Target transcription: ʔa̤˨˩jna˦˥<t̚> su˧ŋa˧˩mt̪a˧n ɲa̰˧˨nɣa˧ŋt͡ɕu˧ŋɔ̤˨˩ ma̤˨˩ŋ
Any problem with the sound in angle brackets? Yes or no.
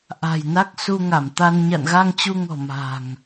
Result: yes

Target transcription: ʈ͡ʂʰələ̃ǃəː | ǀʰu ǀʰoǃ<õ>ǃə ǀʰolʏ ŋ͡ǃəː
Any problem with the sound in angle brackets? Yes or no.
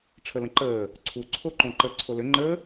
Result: no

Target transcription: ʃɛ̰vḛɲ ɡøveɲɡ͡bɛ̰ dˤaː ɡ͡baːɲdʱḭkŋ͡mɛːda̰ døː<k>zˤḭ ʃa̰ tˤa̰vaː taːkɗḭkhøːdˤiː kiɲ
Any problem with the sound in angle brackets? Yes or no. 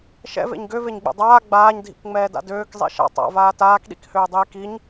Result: no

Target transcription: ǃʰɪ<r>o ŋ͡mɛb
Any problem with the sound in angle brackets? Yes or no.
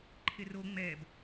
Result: no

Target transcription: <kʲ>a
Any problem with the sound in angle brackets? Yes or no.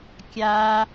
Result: no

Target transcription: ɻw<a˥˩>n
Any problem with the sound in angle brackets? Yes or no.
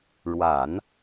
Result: yes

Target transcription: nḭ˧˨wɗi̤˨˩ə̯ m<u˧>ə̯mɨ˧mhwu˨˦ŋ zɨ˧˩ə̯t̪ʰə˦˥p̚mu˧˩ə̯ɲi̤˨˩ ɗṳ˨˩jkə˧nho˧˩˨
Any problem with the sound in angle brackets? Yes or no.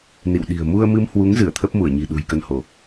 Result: no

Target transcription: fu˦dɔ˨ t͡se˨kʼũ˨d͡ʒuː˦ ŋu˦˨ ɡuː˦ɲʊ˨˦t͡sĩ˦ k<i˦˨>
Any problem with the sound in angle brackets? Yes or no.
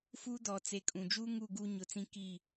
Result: no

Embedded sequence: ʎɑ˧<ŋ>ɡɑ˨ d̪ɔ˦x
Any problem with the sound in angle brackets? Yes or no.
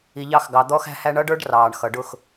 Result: yes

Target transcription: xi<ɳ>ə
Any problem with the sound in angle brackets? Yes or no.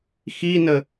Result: yes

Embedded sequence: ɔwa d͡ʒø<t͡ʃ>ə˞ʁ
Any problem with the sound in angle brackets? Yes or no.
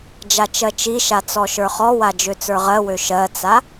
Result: yes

